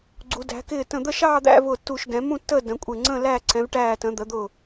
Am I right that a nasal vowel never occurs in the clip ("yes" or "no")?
no